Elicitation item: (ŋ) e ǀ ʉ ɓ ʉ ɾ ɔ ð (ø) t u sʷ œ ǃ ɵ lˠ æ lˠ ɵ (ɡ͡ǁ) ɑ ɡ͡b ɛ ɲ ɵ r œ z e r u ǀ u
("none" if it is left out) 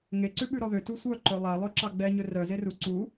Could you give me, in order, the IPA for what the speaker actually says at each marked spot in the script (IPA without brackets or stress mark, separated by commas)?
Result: ŋ, ø, ǁ